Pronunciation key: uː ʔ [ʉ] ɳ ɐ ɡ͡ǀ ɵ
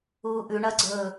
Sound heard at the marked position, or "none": ʉ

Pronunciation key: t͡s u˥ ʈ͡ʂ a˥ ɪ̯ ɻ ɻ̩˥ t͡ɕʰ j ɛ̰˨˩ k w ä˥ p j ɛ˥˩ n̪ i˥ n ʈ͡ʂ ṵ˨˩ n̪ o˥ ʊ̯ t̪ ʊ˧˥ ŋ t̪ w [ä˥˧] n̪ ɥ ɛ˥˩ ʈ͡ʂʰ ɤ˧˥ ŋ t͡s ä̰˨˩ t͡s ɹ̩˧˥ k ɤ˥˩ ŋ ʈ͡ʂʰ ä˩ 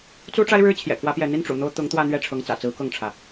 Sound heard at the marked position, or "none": ä˥˧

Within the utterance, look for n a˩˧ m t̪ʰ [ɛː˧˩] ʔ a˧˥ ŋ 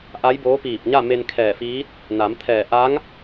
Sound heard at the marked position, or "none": ɛː˧˩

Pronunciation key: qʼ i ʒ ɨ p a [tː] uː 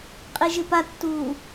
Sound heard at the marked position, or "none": tː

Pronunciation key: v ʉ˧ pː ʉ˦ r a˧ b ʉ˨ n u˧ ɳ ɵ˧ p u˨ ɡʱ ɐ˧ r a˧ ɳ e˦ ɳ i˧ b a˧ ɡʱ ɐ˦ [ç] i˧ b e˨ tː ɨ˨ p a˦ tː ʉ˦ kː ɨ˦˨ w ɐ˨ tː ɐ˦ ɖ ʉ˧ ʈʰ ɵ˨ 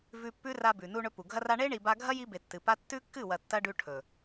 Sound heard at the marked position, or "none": j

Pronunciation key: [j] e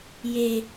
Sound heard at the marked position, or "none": j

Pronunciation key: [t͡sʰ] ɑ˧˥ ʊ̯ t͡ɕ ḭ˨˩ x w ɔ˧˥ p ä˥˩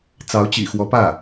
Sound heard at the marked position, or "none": t͡s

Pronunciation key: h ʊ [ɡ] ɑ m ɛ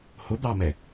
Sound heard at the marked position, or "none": d̪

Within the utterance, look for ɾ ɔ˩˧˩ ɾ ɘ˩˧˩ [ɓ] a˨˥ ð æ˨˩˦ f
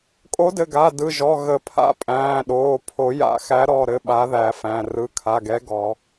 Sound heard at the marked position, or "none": ɓ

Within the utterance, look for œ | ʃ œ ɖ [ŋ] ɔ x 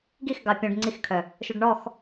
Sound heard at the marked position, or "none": ɳ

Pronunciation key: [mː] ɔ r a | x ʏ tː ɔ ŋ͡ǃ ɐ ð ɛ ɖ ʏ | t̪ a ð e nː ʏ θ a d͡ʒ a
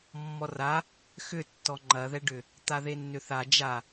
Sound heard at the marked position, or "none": mː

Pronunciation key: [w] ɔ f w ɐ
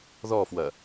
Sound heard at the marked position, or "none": ð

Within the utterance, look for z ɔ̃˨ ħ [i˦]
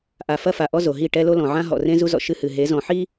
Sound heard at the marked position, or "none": i˦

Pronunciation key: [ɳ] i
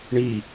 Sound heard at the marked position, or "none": ɳ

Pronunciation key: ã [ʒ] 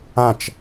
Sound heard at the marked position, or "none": t͡ʃ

